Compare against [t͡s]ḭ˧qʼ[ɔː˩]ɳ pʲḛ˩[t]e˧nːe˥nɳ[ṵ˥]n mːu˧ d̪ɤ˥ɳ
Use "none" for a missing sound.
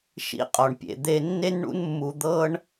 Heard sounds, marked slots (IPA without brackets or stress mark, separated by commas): ʃ, ɔ˩, d̪, ṵ˥